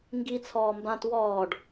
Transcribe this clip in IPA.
ŋ ɡ i t͡sʰ ɔː m b ã t w ɔː ɖ

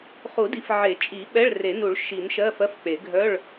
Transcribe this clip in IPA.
χ u˨˩˦ d i˨˩˦ f ʕ e˨˩˦ t͡ʃʼ i˨˩˦ ɓ ɛ˧˥˧ ɭ r e˨˩˦ n u˨˩˦ ɭ ʃ i˨˩˦ n ʃ ɜ˧˥˧ f ɜ˧˥˧ f k͡p e˨˩˦ ɡʱ œ˧˥˧ ɭ

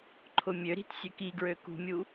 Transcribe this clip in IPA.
ǃʰ ʊ mʲ ø ɾ i̤ t sʲ ø k i ɡ ɹ ø k ṳ mʲ u

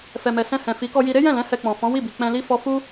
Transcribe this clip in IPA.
f ɛ˨ m ɛ˨ s ɛ̃˧ h ɛ̃˨ f i˨˦ k ɔ˧ j i˧ ɾ e˦ j ɛ̃˦˨ l ɛ̃˨˦ h ɛ˧ k͡p ɔ̃˨ f ɔ̃˨˦ w i˦˨ b i˨ k͡p ɛ̃˧ l i˦ f ɔ˧ f u˦

